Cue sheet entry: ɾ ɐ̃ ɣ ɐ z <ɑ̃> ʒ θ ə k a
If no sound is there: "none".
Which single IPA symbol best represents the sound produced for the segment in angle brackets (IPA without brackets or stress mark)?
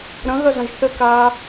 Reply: ɐ̃